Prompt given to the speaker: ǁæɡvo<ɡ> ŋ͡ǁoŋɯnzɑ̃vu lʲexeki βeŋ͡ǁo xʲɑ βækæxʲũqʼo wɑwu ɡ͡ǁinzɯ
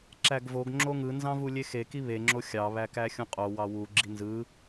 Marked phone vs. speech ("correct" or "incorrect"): correct